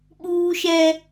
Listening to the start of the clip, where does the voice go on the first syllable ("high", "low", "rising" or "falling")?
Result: high